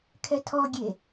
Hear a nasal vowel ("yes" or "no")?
no